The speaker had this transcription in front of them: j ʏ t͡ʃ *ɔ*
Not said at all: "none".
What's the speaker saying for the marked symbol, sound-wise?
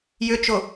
o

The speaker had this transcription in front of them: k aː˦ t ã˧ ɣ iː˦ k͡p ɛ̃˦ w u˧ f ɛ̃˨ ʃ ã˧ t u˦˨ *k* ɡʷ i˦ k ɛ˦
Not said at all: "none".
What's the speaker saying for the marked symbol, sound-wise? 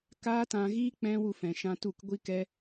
k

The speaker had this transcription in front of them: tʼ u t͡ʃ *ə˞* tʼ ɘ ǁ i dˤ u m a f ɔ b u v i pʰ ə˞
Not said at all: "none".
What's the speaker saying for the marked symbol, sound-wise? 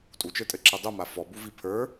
ə˞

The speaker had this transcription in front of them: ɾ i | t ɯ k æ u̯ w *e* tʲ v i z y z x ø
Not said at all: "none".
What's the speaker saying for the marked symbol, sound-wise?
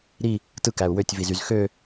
ø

